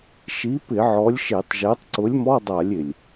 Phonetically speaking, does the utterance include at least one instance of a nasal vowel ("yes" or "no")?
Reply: no